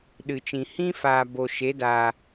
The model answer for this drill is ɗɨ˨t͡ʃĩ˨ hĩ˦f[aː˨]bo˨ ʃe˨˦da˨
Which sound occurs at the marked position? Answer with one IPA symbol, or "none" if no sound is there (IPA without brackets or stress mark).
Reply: aː˨